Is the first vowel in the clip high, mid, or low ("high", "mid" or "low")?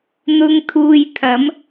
high